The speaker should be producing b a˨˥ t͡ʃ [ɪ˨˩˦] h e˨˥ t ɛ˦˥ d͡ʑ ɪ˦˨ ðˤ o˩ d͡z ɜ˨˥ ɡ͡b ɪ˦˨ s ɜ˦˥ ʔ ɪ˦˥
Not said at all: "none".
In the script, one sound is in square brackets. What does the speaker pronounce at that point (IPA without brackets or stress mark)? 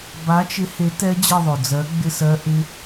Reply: ɪ˨˥